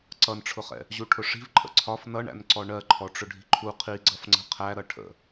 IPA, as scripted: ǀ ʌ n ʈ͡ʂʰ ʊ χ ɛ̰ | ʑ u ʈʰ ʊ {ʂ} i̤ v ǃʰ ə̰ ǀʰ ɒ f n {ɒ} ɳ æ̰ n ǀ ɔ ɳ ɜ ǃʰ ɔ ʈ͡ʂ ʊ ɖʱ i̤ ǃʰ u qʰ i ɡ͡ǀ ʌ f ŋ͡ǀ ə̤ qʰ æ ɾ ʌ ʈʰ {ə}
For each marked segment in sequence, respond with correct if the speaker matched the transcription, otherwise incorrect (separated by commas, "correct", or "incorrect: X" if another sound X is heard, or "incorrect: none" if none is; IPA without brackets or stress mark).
correct, incorrect: ʌ, incorrect: ə̰